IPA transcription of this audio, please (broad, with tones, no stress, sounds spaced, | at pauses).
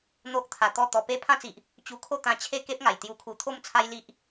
n̪ o˦ ʔ t̪ʰ a˧ t̪ ɔ˥˧ t̪ ɔ˧ p e˦ pʰ ã˦ t͡s i˨ ʔ | t͡ɕ u˧ kʰ o˥˧ t̪ ã˧ t͡ɕʰ e˥˧ k e˦ p̚ ŋ a˨˩ j t̪ j u˧ kʰ u˧ t̪ʰ o˥˧ m t͡sʰ a˦ j l i˦ ʔ